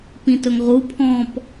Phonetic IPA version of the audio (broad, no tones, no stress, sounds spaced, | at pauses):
p ĩ t ɵ ŋ ʁ u pʰ ɔ̃ p